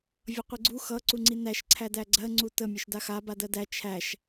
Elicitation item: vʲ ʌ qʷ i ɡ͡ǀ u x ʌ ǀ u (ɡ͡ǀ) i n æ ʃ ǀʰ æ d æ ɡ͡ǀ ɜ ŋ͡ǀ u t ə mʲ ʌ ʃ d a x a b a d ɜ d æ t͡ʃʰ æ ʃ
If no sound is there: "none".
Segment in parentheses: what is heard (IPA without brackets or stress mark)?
ŋ͡ǀ